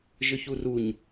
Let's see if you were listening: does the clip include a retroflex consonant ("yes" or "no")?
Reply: no